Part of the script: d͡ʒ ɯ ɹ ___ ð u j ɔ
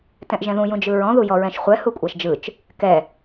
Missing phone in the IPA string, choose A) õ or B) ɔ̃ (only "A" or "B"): B